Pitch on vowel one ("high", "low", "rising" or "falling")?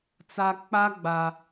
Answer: low